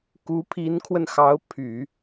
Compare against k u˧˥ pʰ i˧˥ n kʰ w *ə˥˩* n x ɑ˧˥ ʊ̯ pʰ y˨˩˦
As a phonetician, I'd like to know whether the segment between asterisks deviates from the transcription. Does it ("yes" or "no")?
yes